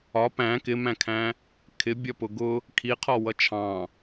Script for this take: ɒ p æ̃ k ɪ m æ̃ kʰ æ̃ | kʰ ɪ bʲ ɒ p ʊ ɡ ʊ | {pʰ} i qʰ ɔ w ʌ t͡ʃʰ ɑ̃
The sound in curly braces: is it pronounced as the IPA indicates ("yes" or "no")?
no